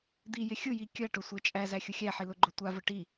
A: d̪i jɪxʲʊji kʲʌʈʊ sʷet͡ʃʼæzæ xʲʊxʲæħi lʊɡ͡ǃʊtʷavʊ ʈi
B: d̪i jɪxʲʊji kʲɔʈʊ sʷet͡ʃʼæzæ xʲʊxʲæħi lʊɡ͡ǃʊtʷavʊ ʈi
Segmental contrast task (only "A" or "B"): A